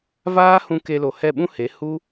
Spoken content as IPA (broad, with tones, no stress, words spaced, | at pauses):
vaː˦hũ˧ ke˧lo˨ hɛ˦˨ɓũ˦he˨˦ hu˦